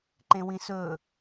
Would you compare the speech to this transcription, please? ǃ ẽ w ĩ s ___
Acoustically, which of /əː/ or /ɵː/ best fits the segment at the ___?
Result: ɵː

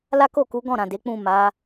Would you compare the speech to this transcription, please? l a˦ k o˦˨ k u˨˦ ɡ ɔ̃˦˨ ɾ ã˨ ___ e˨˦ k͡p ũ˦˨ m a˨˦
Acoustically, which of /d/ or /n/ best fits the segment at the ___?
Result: d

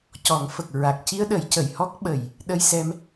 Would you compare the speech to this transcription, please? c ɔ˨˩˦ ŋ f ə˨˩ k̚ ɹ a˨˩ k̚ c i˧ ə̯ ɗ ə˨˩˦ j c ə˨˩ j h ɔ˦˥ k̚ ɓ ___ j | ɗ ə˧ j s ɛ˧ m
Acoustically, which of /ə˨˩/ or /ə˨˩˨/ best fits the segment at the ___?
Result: ə˨˩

